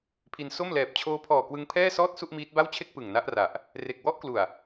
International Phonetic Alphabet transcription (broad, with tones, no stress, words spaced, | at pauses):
pʰi˧n so˥˩m lɛː˨˩p̚t͡ɕʰoː˦˥pʰɔː˨˩ kwɯ˦˥ŋpʰɛː˥˩sɔː˥˩t̚ su˥˩ʔmiː˦˥t̚ba˥˩wt͡ɕʰe˥˩k̚ pɯ˨˩ŋna˦˥ʔra˨˩ʔ | re˨˩k̚ wɔ˦˥ʔklu˨˩a̯